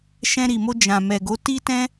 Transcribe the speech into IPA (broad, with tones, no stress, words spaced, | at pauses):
ʃɛ̃˧ɾi˨mo˧ d͡ʒã˨mɛ˨ɡo˨˦ ti˦tɛ̃˦